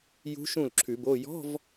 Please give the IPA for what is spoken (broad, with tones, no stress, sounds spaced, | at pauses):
j ṳ˧˥ ʃ ũ˥˩ l ǁʰ ʉ˨˩˦ b o˧˥˧ j ɔ̤˧˥˧ v